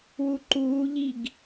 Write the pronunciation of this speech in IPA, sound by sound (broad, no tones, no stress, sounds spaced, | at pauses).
w u ǃ uː ʎ i ɡ